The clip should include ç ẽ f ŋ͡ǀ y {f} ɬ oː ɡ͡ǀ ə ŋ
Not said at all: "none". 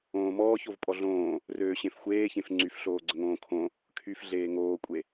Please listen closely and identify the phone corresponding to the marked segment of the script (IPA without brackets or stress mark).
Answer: f